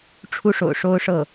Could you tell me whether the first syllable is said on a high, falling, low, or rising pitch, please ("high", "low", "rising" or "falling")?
high